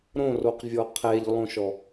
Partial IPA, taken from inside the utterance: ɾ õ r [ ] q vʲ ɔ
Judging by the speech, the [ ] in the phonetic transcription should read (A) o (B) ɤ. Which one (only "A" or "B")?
A